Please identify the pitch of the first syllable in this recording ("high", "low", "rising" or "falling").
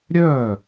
falling